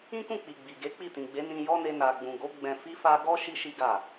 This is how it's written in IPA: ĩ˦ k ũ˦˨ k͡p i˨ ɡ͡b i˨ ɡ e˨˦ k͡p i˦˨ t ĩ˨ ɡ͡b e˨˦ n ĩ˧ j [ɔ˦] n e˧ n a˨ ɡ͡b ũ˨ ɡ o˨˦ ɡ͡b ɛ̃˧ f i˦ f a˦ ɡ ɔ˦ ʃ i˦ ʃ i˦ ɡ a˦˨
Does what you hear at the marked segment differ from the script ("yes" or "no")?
no